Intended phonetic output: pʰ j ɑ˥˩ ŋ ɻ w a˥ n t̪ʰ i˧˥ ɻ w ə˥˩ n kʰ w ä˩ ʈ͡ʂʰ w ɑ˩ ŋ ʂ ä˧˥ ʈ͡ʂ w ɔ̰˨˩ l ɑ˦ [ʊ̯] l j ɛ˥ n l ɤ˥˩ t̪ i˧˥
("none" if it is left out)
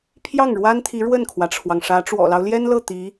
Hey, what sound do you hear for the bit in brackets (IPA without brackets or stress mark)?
ʊ̯